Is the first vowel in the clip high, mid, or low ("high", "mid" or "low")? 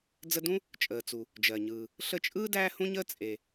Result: mid